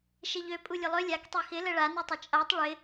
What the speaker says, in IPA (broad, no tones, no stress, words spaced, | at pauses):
ʃeʎø pʼulʲʊlˠø lʲak tˤexɪ ləɭa nutˤət͡ʃʼatˤ ɭɪ